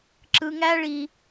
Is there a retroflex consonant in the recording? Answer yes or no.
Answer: yes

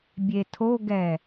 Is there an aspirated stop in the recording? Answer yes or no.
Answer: yes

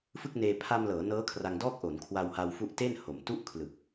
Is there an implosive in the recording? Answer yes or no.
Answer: no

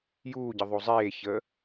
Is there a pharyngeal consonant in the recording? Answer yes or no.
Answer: no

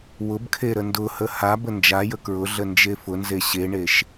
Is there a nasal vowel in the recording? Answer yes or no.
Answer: no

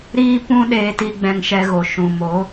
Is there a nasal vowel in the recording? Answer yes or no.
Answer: yes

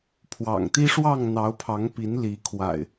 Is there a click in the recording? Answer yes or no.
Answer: no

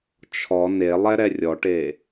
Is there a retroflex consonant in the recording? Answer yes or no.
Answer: yes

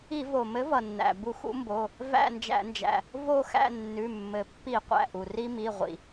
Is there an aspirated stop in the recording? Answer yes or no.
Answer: no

